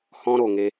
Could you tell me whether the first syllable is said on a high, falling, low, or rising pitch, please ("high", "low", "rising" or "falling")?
high